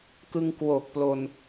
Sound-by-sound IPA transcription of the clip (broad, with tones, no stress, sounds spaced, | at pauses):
k ɯ˧ ŋ k w o˨˩ k̚ p l o˧ n